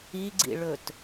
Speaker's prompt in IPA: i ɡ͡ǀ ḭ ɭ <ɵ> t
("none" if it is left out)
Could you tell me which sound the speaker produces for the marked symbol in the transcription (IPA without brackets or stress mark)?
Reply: ɵ